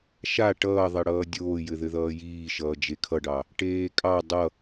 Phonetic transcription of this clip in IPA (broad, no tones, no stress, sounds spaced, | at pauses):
ʃ a ʈ ʌː ðˤ ɛ ɽ ʌː dʲ oː j ɘ ð ɘ ð ʌː j iː ʃ ʌː d͡ʒ e kʰ ʌ ɖ ɑ | ʈ eː kʼ ɑ dˤ ʌ